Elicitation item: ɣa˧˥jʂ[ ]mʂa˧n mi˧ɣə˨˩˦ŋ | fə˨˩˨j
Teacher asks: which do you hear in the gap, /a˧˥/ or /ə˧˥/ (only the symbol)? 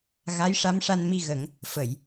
a˧˥